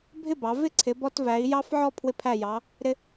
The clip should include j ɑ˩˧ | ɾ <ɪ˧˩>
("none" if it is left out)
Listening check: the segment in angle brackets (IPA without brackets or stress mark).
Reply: ɪ˧